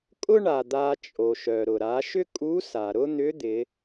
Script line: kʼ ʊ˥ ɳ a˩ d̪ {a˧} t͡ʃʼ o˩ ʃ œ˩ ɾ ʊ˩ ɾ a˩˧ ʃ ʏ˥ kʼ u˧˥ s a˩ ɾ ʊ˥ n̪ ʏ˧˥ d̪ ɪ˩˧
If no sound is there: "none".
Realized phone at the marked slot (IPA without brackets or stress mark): a˧